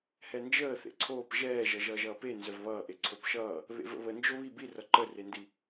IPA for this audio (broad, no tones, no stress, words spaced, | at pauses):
hɛnd͡ʒəː θḛǀʰoːp ʒɛːʒʌ ʒʌːʒʌːpe nzœvβʌːʔe ǀʰopʃʌː | βḛvə̰βə nd͡ʒoβi bi rʌǃərendi